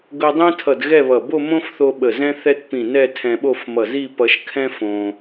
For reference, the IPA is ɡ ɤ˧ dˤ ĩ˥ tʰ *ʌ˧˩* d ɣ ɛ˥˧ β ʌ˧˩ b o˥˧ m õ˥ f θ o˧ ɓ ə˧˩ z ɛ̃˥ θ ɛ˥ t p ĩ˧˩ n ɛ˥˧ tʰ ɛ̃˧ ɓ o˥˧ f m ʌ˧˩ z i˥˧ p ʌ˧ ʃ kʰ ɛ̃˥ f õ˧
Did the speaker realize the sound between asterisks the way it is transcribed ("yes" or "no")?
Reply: yes